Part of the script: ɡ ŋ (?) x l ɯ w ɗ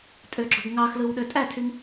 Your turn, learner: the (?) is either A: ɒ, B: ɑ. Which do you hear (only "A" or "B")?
B